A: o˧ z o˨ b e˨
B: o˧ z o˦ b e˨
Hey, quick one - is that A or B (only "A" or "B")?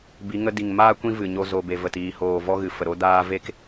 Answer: A